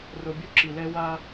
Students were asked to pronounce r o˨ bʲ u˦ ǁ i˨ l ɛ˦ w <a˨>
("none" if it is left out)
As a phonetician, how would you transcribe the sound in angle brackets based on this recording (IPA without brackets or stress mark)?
a˦